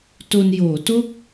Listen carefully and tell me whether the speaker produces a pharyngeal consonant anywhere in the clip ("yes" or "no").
no